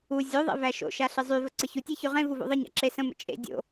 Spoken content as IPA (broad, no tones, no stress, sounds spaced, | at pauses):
u zʲ o ðˤ ḛ v æ ʃ o̰ ʃ a ɬ ɨ zˤ y v ə ǀ ə ç u tʲ e ç y ʁ ẽ v u v o̰ ðˤ ɨ ɲ a̰ ǁ e s ə̃ m ə̰ t͡ʃʼ ḛ dʲ o̰